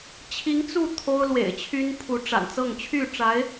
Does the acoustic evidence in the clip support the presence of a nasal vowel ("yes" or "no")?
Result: no